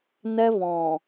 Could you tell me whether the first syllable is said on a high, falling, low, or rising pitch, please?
high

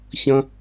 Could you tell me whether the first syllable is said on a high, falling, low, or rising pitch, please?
high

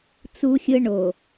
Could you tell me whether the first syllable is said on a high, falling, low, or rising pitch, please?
high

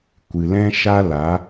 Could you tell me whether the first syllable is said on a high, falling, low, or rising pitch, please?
low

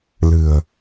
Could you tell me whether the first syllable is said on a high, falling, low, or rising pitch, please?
low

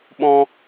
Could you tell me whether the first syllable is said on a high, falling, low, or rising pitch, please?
high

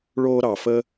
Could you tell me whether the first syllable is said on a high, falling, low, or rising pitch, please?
high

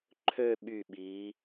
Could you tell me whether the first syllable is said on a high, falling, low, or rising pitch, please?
falling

